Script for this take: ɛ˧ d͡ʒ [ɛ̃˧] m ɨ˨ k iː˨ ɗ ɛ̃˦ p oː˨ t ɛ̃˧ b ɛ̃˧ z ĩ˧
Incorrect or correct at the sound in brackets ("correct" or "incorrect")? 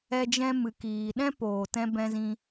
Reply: correct